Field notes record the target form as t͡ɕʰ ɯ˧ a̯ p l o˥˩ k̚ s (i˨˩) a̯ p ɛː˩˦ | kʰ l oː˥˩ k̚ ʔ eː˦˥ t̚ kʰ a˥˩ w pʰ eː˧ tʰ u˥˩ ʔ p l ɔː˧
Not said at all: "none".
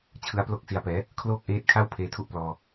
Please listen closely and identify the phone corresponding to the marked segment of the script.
i˨˩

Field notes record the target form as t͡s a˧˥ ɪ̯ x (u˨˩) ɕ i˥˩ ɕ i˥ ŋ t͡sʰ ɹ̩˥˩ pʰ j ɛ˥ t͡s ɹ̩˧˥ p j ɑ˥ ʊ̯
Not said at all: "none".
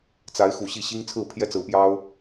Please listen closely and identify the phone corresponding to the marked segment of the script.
u˨˩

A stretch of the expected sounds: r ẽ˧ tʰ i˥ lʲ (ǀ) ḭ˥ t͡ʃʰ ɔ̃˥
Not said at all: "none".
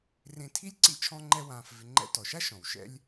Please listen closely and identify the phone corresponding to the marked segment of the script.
ǀ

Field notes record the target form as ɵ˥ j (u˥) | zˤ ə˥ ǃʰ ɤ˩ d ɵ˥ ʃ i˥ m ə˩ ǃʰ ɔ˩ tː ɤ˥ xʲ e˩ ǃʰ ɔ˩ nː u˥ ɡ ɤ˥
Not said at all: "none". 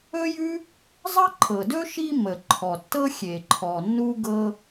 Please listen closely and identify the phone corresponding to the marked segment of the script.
ʉ˥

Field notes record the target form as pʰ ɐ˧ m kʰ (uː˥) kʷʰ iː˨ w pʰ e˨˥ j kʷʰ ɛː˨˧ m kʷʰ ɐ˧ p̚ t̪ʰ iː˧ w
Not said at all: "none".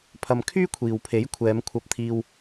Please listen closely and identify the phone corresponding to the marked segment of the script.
yː˥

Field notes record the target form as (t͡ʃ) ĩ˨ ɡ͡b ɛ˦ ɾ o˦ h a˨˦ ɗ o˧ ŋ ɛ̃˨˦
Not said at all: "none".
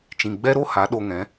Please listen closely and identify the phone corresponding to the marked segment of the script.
t͡ʃ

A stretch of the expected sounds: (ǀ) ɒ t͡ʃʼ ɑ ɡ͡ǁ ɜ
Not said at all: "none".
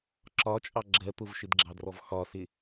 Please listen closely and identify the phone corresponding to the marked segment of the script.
ǁ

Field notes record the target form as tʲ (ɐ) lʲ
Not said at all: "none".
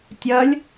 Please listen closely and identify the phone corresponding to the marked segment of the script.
ɐ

